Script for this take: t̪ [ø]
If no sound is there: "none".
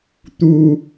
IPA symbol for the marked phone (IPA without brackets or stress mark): u